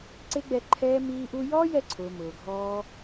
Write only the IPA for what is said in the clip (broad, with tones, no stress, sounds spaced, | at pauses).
ǀ e˦ ɡ͡b ɛ˧ ǃʰ ɛː˦ m iː˦ ʔ u˦ j ɔː˦ j ɛ˧ ǀʰ ʊː˨ m ʊː˨ ɡʱ ɔː˦